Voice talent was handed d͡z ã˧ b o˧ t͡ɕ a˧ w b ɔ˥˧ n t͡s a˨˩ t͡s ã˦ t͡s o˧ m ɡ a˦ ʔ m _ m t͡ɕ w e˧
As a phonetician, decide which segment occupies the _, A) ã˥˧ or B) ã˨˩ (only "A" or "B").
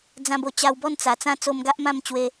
A